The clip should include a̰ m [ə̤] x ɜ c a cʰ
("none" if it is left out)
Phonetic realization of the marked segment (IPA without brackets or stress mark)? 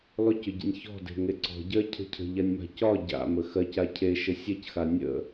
ə